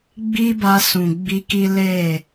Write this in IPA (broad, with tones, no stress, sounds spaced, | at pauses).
ɡ͡b i˦ b a˧ s ũ˨ ɡ͡b i˧ k i˦ l e˦˨